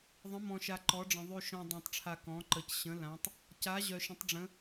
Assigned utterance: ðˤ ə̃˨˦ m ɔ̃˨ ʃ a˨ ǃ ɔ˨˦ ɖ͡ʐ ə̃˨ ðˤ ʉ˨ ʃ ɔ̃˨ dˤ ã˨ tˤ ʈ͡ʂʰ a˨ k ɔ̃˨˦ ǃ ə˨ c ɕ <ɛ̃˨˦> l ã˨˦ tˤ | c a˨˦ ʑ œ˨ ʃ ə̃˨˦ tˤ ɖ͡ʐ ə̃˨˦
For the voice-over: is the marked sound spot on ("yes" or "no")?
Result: no